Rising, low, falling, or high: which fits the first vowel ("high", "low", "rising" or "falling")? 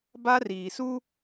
high